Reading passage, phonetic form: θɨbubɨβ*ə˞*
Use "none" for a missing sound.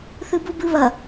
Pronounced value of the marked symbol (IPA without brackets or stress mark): ɐ